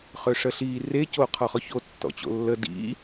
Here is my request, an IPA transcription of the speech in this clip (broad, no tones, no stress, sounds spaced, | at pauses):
χ ø ʂ ə ɬ i r e c o qʰ ɔ χ ɔ ç o tː ɔ̰ t͡ɕ o̰ lː ə d ḭ